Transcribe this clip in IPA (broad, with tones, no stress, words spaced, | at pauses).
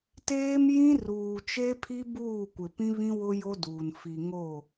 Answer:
teː˦mjĩ˦ruː˨ t͡ʃe˦pʰi˦ buː˦˨kʷɪ˨pĩ˦βĩ˦ wʊ˦jo˦duː˨n fi˨ ŋo˦˨